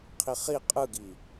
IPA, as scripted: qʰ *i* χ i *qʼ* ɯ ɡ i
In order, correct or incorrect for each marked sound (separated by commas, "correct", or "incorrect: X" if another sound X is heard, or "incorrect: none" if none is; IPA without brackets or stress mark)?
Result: correct, correct